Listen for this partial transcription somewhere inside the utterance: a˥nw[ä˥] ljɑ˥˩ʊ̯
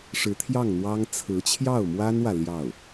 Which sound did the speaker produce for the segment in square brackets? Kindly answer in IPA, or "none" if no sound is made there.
ä˨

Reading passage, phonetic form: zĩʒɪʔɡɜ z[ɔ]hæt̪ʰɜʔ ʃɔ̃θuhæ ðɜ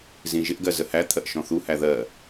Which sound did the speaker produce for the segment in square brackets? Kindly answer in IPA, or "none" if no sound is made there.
ə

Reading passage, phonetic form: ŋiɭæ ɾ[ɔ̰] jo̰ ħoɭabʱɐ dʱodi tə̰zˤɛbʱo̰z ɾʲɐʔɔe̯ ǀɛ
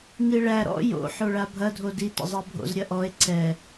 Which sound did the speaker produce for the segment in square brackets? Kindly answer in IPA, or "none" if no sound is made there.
ɔ̰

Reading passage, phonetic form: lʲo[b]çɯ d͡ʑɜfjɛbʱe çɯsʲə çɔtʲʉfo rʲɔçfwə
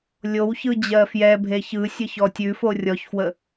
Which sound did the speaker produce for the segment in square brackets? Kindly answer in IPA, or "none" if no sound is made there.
w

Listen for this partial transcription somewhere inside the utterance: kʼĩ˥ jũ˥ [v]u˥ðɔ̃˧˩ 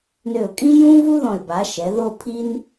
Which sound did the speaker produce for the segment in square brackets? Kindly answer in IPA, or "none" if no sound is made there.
v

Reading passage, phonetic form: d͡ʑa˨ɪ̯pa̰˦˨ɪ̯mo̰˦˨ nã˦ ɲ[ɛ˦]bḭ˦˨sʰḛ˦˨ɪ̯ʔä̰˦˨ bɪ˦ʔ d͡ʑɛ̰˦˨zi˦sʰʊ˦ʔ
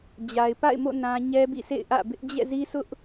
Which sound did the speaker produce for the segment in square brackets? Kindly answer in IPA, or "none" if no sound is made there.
ɛ˦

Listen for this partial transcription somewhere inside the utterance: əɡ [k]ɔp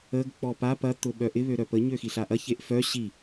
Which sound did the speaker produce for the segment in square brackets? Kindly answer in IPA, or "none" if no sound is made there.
k͡p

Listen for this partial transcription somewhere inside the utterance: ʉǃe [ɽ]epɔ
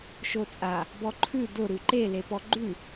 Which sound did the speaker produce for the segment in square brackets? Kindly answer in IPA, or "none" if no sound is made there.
l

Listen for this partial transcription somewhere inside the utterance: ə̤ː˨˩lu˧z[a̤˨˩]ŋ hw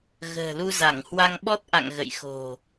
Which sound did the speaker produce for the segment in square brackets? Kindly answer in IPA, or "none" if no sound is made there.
a˧˩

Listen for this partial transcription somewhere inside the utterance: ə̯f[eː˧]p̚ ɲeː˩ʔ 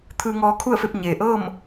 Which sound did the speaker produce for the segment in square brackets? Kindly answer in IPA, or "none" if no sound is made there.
e˧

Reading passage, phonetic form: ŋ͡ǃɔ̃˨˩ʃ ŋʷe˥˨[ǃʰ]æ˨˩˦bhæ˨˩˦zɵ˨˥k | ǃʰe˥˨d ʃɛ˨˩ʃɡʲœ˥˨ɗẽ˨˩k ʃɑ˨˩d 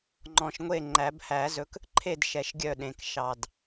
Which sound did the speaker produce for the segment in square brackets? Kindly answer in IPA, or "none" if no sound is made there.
ŋ͡ǃ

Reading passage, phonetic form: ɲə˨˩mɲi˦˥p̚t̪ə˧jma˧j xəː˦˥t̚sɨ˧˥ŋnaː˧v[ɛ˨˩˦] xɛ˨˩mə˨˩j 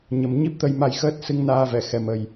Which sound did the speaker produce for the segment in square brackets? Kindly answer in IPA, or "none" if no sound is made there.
ɛ˨˩˨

